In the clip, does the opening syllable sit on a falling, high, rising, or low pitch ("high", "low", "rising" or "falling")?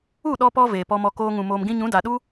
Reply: falling